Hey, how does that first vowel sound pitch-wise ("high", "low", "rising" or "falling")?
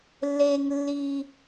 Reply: low